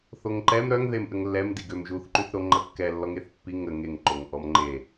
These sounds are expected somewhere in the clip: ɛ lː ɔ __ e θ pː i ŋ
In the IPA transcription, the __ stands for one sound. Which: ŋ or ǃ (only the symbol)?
ŋ